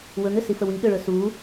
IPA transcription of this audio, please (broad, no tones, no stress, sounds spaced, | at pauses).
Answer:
w ɵ ŋ ʏ s i f ə w i ɠ ʏ ɭ ɵ s u